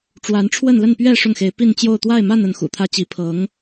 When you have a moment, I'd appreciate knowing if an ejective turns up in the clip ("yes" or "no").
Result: no